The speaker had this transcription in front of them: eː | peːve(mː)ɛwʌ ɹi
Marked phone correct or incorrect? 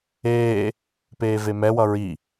incorrect